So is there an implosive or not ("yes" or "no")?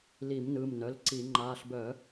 no